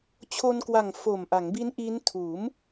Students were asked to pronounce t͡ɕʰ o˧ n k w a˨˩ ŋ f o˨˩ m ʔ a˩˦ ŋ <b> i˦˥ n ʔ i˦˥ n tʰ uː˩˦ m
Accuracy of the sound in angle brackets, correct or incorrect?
correct